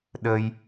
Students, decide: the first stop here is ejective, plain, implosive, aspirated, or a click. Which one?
implosive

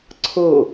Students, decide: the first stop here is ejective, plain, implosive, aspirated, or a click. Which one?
click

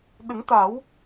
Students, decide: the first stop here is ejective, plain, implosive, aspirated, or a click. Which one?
implosive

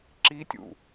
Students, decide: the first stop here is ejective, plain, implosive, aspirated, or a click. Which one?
click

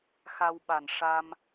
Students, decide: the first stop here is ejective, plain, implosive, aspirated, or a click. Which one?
implosive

